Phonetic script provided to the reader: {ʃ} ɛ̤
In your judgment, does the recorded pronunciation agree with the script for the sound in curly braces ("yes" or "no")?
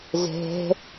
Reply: no